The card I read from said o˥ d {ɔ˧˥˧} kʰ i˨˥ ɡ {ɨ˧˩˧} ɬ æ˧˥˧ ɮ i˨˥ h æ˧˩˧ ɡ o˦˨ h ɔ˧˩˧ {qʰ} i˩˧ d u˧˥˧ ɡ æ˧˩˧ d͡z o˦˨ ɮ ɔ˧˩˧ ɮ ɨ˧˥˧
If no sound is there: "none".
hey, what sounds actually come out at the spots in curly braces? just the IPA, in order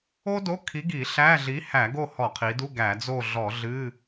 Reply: o˧˥˧, i˧˩˧, qʰ

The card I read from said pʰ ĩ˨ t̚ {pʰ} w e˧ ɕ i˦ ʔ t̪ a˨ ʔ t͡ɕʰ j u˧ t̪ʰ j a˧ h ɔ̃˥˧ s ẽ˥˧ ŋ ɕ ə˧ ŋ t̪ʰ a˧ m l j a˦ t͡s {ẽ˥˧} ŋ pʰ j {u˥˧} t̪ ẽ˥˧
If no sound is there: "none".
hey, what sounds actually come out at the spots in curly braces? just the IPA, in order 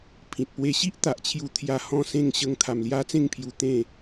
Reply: p, ẽ˥˧, u˧

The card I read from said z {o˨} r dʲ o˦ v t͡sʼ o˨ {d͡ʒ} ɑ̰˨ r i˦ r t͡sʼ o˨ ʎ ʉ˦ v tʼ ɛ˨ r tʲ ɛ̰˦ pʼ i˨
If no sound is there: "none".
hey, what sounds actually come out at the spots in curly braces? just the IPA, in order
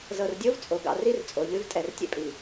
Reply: ɤ˨, ɡ

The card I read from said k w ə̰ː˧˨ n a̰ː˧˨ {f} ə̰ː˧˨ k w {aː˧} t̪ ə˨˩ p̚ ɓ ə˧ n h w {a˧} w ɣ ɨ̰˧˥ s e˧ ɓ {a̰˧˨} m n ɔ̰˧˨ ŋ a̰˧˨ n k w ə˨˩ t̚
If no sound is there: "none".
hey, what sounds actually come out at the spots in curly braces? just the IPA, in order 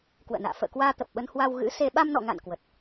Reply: f, aː˧, a˧, a˧

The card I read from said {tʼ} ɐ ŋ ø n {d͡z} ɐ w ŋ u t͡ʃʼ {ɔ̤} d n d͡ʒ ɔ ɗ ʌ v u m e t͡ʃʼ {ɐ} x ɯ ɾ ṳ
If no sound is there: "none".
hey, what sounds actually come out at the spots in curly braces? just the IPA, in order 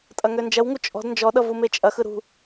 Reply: tʼ, d͡ʒ, ɔ̤, ɐ

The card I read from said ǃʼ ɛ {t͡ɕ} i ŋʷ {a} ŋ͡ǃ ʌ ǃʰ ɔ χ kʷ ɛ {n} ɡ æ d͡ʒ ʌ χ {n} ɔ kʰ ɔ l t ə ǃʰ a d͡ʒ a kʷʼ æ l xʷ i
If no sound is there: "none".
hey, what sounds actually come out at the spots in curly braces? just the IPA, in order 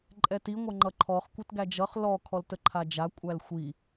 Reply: t, ʌ, t, l

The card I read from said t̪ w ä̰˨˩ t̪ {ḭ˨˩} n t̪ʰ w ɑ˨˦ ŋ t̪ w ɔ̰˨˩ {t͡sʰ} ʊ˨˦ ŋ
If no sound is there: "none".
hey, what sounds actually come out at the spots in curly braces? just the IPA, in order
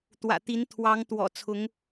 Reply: i˨˦, t͡sʰ

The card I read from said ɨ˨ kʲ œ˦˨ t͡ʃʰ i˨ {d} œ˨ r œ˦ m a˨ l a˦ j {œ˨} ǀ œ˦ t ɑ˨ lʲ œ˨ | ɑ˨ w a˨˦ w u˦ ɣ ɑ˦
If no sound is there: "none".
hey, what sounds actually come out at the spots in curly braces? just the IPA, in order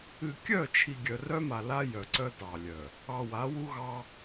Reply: ɡʲ, œ˨

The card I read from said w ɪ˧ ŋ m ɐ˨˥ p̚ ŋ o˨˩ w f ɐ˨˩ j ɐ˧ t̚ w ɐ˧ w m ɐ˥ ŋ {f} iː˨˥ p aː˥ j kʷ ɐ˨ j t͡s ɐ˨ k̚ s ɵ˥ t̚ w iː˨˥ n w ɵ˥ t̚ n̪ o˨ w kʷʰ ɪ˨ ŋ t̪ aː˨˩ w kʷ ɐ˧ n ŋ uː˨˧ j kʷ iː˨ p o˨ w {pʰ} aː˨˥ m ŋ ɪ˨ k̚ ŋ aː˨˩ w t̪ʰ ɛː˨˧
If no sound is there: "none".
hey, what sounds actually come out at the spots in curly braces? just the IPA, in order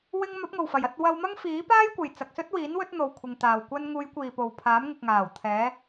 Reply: f, pʰ

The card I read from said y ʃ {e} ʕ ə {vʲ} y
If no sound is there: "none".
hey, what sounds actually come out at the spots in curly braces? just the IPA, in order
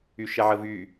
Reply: ɛ, v

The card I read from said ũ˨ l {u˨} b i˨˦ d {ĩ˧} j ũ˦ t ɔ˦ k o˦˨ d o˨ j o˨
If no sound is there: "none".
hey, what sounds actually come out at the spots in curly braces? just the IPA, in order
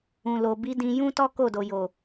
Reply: o˨, ĩ˧

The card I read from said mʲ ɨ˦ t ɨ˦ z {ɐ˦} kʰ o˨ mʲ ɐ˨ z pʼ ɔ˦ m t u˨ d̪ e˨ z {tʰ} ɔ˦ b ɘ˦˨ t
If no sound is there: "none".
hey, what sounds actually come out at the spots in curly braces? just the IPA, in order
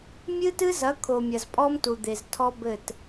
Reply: ɐ˨˦, tʰ

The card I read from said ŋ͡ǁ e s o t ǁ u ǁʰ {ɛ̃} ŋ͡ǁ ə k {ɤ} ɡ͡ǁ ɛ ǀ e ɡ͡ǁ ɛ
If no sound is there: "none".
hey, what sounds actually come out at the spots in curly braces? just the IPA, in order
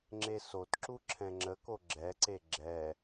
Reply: ɛ̃, o

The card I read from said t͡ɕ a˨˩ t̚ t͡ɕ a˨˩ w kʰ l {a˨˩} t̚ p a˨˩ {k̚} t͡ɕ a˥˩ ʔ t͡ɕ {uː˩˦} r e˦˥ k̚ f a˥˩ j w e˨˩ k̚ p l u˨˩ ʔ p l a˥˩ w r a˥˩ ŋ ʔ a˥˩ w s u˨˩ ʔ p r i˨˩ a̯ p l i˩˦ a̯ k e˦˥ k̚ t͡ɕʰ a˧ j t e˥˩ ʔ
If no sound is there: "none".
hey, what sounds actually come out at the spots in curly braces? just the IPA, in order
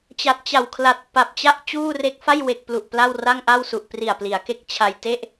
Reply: a˨˩, p̚, uː˥˩

